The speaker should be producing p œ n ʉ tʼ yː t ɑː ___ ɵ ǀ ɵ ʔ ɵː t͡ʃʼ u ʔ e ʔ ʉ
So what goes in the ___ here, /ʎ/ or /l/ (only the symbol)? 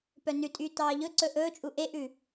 ʎ